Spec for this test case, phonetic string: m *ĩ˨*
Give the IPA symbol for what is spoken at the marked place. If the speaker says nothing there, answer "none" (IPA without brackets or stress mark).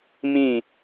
ĩ˦˨